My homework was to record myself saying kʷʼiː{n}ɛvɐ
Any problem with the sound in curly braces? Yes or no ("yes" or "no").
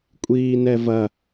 no